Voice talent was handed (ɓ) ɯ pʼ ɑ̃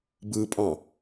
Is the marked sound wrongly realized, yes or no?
yes